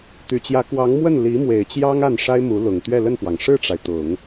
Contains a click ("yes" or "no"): no